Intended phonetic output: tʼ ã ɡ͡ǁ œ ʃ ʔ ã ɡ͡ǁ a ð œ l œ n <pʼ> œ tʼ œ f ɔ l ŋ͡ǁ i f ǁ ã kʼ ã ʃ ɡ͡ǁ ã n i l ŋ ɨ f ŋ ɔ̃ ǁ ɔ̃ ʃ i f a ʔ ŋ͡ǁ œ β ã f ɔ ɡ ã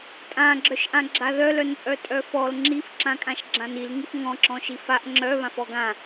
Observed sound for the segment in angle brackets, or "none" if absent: pʼ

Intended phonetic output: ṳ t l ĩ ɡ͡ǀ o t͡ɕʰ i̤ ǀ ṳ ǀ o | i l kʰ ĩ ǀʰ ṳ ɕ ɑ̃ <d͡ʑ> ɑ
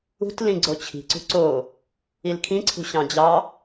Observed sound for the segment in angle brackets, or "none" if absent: d͡ʑ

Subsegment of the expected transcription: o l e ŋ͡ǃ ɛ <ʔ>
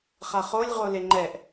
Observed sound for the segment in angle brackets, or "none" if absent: ʔ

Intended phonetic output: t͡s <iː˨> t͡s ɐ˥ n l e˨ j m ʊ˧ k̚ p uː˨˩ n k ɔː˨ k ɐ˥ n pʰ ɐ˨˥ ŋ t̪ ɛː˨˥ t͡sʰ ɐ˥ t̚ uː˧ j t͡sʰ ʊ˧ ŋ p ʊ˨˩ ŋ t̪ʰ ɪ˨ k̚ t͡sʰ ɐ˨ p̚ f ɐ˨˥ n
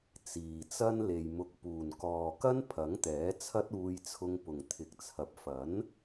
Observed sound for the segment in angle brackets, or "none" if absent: iː˨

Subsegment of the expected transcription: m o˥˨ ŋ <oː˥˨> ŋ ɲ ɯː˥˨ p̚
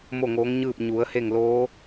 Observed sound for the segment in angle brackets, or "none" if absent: oː˧˥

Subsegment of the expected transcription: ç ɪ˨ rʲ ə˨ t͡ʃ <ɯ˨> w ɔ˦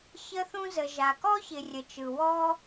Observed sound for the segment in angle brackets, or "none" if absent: ɯ˨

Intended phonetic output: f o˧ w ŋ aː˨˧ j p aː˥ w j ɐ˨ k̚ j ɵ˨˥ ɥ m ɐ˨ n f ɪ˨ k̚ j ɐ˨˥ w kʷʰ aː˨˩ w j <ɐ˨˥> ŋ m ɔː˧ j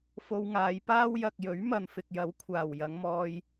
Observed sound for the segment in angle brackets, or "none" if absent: ɐ˨˧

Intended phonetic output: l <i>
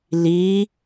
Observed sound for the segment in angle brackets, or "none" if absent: i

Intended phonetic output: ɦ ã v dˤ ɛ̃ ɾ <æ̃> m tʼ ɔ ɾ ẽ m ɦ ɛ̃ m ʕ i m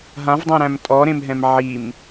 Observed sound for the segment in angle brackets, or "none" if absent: æ̃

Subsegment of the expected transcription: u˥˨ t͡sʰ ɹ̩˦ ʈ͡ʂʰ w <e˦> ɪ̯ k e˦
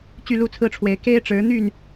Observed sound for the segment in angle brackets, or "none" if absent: e˨˦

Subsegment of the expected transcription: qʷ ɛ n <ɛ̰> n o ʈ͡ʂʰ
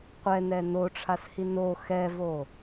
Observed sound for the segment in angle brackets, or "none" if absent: ɛ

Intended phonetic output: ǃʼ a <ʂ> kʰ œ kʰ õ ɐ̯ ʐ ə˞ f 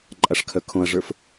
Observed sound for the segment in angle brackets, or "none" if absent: ʂ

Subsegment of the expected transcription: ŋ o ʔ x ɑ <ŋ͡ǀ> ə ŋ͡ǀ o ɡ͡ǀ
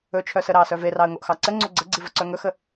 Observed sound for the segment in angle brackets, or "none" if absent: ǀ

